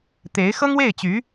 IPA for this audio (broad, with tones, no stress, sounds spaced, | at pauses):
t̪ e˧˥ ɪ̯ x ɤ˥ ŋ w e˥˩ ɪ̯ t͡ɕ y˧˥